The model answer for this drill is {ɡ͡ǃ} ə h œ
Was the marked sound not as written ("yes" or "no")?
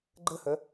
no